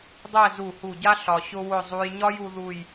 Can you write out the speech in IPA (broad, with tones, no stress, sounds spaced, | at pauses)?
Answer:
dˤ ɛ˥˧ z u˧˩ h u˧˩ ɟ a˥ ɬ ɒ˧ ɕ ʊ˥ w ʊ˥˧ zˤ u˧ j ɲ ɒ˥ j u˥ ð u˥˧ j